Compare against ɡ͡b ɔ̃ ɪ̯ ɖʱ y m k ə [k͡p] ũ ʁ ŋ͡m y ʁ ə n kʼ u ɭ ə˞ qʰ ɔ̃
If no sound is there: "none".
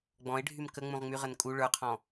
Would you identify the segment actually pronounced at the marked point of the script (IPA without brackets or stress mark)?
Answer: ŋ͡m